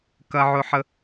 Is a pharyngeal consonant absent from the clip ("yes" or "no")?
no